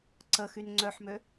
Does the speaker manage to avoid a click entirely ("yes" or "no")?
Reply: no